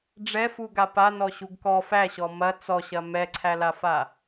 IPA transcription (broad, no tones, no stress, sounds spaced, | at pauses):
ɖ͡ʐ ɛ f u ɡ a p a n ɔ ɕ u ɡ k ɔ f æ ɕ ɔ m ɐ t͡s ɔ ɕ ɐ m ɛ ǀʰ æ l a f a